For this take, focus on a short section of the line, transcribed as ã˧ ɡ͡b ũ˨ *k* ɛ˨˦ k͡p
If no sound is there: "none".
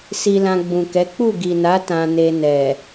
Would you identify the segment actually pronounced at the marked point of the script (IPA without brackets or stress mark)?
k